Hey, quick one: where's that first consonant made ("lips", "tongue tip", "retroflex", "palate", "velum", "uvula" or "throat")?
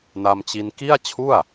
tongue tip